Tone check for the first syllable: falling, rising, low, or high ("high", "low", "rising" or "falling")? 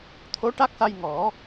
rising